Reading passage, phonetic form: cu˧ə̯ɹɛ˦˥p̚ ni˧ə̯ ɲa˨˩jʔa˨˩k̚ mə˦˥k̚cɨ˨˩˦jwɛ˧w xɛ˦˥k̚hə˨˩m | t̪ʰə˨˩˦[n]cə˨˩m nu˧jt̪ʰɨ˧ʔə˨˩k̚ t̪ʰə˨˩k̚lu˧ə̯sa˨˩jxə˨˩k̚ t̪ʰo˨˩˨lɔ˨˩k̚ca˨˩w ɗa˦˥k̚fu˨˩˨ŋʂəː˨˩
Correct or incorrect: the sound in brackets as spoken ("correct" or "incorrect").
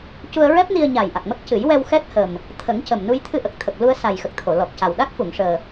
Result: incorrect